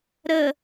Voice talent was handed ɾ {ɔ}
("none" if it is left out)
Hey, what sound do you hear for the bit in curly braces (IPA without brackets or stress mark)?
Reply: ə